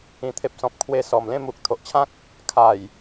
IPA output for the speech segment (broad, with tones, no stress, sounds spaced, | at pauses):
ĩ˨˩ t̪ʰ e˨ p̚ s ɔ̃˨ p̚ kʰ w e˧ s ɔ˨˩ m l ẽ˥˧ m u˨ k̚ t̪ʰ o˨ ʔ t͡ɕʰ ã˦ k̚ | kʰ a˨˩ j